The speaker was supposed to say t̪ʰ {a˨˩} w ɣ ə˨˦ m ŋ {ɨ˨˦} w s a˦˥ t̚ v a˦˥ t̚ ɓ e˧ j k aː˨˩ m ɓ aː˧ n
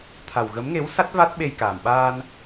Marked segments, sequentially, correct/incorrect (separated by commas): correct, incorrect